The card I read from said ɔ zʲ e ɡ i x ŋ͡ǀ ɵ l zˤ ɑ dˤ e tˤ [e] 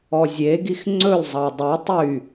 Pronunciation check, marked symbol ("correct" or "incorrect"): incorrect